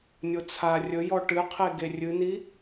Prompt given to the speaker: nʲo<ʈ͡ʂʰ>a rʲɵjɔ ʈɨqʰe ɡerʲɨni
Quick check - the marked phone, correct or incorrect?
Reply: incorrect